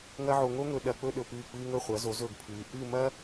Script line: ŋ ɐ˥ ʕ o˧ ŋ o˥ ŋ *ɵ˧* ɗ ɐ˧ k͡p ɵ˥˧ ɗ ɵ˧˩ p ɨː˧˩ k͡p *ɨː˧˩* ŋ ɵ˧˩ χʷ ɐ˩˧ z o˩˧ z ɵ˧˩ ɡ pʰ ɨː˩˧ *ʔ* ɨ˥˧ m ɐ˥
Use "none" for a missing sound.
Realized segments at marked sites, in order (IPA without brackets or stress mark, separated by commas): ɵ˧, ɨː˧, ʔ